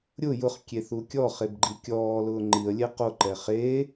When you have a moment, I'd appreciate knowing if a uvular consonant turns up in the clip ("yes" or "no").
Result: yes